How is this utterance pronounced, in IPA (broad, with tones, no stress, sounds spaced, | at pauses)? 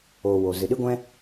oː˨ w o˨ z ɨ˨ ɗ ɨ˦ ɡʷ ɛ̃˦